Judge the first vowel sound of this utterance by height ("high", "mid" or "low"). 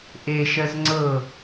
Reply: mid